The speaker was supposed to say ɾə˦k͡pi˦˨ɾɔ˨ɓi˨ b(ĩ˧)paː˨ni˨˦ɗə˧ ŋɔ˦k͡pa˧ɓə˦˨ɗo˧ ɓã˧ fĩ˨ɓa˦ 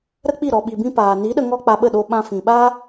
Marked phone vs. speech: correct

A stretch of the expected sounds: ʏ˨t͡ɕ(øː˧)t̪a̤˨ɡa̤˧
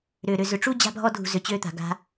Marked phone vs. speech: correct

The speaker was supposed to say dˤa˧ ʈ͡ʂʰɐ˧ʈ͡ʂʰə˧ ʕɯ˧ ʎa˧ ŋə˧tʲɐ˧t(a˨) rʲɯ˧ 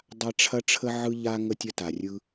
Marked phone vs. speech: correct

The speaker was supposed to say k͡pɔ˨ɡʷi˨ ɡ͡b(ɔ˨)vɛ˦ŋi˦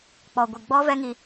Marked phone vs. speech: incorrect: ɔ˦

